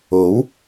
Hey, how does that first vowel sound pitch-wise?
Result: rising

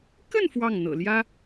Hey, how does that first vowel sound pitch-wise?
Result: falling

